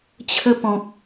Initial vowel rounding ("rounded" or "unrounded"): unrounded